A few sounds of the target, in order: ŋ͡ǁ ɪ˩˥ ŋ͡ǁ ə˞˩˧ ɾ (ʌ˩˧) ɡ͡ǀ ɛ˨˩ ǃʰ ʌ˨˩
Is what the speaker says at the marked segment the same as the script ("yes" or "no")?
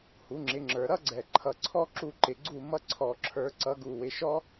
no